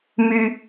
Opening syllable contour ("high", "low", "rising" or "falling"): high